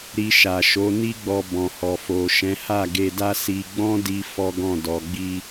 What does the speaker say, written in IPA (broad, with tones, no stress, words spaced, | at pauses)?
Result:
ɾi˧ʃa˨ʃo˨˦ ni˦ɡ͡bɔ˧ bɔ̃˨hɔ˨fo˨ʃɛ̃˨˦ ha˦˨ɡe˧da˦ si˧ɡ͡bɔ̃˦di˧ fɔ˦ɡɔ̃˦˨ dɔ˨ɡ͡bi˧